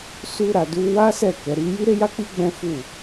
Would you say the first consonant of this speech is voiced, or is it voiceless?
voiceless